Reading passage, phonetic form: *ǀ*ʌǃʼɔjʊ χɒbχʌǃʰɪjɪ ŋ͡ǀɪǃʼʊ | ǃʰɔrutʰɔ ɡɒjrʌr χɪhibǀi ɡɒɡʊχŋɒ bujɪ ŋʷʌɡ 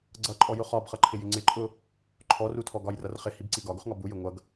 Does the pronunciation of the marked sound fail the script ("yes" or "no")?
yes